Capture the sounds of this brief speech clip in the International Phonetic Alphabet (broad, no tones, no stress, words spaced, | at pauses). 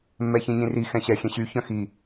mːɛçĩɲĩri xɛ̃ɕɛ xʲɛ̃ɕy çœ̃xi